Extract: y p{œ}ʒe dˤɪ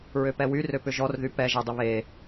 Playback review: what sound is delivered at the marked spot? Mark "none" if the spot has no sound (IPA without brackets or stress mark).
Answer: ɛ